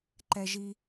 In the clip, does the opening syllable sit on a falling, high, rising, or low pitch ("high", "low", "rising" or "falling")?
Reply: low